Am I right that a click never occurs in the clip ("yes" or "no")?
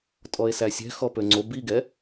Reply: no